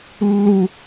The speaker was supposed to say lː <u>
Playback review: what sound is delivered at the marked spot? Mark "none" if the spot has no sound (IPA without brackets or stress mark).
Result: u